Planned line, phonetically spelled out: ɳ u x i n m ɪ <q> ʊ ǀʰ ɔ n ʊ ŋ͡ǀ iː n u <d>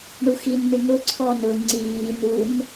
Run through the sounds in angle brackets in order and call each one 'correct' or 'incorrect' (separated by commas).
incorrect, incorrect